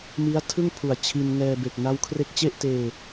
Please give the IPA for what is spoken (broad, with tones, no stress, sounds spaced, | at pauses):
m i˦˥ a̯ tʰ ɯ˥˩ ŋ pʰ u˨˩ a̯ t͡ɕʰ i˧ n ŋ ɛː˧ b e˨˩ k̚ n a˦˥ w kʰ r e˦˥ k̚ t͡ɕ e˥˩ ʔ t eː˧